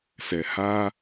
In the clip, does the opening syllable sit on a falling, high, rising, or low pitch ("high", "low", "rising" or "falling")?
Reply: low